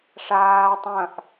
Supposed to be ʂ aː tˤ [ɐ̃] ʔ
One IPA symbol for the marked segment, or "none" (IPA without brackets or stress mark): ɐ̃